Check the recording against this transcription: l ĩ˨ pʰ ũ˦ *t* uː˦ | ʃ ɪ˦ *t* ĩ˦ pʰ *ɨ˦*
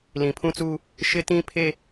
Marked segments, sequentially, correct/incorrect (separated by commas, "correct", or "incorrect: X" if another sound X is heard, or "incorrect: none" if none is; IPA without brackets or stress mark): incorrect: t͡s, correct, incorrect: e˦